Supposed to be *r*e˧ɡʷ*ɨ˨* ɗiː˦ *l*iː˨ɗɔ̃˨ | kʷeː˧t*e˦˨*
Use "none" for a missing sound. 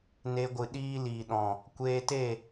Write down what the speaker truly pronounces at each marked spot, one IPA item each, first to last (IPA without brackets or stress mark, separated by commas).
n, ɨ˨, l, e˦˨